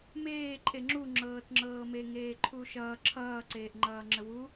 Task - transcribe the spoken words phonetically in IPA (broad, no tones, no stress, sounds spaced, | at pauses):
m eː ǃʼ e ŋ͡ǁ u ŋ͡ǁ ɤː t ŋ͡ǁ ɤː m e ŋ eː ǃʰ u ʃ ʌː ǁʰ ʌː ǀ eː ʔ ŋ͡ǃ ʌː ŋ͡ǁ ə w u